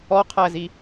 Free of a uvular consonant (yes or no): no